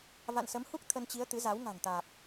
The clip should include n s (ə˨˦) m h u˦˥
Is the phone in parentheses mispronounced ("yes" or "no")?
no